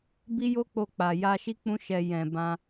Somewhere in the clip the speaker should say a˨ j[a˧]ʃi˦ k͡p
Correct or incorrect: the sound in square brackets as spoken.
correct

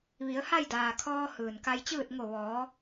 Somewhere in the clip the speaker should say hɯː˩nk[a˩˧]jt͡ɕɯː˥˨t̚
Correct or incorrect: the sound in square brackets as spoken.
incorrect: a˧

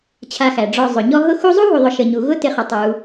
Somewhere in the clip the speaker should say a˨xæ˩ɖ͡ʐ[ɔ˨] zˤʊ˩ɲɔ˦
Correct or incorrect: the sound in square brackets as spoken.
correct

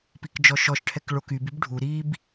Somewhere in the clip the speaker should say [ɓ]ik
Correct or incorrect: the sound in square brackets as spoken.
incorrect: p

